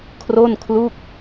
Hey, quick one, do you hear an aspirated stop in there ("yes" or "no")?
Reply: yes